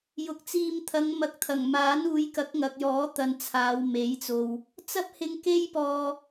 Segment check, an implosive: absent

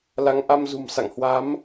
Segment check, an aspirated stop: absent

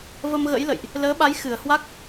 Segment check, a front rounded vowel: absent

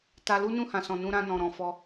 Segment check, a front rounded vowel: absent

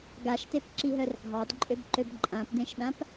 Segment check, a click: present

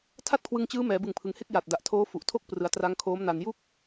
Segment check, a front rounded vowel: absent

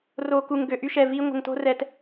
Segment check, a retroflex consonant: absent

